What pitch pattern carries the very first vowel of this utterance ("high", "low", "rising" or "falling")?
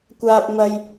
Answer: high